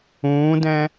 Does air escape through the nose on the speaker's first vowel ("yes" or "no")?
yes